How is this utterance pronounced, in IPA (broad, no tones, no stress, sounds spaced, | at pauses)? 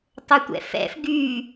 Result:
tˤ ɵ tʷ ɛ̰ f ɛ̰ f ɡ y